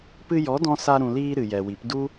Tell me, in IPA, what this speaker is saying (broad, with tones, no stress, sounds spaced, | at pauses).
p ɨ˧ j ɔ˨˦ d ɔ̃˧ s a˧ ɾ ũ˨ l iː˧ ɾ ɨ˨ j ɛ˨ w i˨˦ p d u˦